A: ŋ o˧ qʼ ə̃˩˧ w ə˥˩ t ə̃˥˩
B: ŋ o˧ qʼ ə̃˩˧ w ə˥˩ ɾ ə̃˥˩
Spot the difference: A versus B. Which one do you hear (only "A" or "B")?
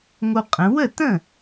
A